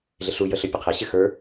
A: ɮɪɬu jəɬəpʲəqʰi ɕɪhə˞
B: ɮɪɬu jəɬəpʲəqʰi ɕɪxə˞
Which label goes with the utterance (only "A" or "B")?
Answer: B